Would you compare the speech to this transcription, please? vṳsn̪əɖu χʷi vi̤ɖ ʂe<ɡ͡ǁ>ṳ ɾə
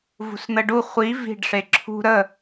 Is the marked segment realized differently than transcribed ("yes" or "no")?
yes